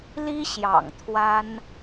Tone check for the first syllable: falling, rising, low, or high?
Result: high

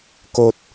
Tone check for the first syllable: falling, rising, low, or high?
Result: low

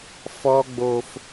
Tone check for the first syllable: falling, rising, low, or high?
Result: high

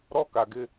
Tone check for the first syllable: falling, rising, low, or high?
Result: high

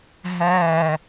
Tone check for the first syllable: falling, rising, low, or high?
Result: low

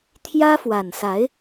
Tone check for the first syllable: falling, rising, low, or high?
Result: high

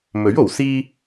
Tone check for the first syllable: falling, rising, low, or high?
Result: rising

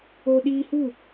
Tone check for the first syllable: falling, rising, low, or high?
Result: high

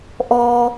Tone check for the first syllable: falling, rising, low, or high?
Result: high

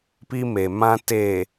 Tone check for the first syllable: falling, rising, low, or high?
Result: high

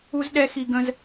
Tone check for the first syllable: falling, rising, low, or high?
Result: high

